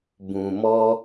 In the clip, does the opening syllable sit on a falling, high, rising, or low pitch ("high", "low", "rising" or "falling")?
low